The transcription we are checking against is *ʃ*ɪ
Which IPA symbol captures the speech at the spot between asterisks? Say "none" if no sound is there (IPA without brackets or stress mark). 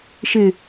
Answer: ʃ